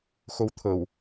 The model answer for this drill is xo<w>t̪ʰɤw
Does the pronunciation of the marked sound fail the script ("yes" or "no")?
no